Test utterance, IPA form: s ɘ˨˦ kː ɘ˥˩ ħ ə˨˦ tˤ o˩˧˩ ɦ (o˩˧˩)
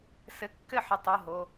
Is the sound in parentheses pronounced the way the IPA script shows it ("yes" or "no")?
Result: yes